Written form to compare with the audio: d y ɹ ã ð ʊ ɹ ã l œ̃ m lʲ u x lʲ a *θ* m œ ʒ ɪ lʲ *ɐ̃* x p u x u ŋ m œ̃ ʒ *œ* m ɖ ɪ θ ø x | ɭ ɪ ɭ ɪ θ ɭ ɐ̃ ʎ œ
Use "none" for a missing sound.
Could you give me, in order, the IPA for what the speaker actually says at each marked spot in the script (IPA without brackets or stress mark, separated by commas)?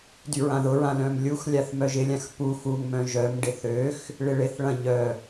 θ, ã, œ